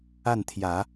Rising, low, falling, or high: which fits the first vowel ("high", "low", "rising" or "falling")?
falling